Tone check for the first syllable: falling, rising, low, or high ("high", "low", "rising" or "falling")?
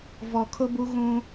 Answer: low